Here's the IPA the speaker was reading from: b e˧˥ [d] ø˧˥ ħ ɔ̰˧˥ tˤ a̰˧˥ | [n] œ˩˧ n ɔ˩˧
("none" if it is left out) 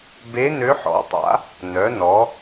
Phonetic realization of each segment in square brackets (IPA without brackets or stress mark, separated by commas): n, n